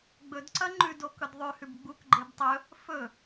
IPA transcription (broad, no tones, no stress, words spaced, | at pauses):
ɡ͡bɵdǀɐ ŋ͡ǃʉdokɵd ðˤʉhʉb ɡ͡bukɡ͡ǃeb tˤɵ | fɵ